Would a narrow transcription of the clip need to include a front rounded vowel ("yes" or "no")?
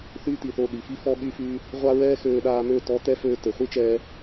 yes